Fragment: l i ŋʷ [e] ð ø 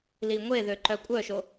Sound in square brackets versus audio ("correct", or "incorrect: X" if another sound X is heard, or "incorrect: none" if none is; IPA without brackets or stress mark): correct